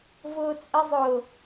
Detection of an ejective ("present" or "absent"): present